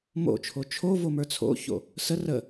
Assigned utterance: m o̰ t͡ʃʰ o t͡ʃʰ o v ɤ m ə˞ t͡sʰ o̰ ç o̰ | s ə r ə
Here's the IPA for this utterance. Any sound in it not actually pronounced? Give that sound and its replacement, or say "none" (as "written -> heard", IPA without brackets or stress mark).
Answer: ɤ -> o